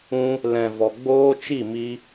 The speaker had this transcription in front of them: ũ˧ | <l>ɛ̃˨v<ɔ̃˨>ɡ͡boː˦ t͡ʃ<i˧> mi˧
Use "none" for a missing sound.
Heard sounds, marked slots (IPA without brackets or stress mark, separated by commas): l, ɔ˨, i˦˨